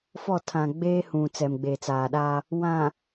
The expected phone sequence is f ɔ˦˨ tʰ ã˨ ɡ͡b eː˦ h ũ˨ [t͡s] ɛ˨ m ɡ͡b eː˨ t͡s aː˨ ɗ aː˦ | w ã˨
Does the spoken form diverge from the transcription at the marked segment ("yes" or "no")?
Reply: no